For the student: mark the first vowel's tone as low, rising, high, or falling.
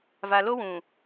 low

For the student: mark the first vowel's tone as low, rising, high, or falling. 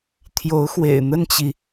rising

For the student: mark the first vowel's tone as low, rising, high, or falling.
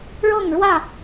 falling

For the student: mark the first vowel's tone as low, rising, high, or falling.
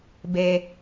low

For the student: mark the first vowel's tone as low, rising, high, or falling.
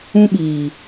high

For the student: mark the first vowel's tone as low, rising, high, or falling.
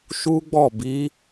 high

